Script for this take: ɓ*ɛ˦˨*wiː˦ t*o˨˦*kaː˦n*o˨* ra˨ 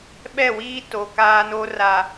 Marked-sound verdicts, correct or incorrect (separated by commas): correct, incorrect, incorrect